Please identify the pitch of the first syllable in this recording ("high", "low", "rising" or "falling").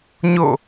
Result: falling